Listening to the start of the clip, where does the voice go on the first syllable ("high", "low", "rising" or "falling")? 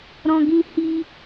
high